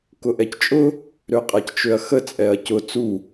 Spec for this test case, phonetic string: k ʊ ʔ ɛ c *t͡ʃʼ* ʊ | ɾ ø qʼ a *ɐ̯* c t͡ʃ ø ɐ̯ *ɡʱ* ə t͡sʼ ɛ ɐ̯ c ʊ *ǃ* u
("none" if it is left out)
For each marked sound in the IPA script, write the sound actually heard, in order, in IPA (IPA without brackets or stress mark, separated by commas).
t͡ʃʼ, none, x, t͡s